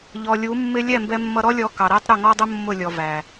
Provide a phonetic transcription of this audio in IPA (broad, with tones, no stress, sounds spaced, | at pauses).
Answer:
ʎ ɔ˨ lʲ u˨˦ mː ɪ˦ lʲ ɛ˦˨ m b ɛ˧ mː ʌ˧ ɾ ɔ˦ lʲ ɔ˧ k ɑ˨ ɾ æ˦ tˤ ɾ ʊ˦˨ ŋ ɔ˦ dˤ ʊ˦ mː ʊ˦˨ lʲ ɔ˨ v æ˨